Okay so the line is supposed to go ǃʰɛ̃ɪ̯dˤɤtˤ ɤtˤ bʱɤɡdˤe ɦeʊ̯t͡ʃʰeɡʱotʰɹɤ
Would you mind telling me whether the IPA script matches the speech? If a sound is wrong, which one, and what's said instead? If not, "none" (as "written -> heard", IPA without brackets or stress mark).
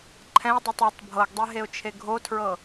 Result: none